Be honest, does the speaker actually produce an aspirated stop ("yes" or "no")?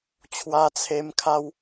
yes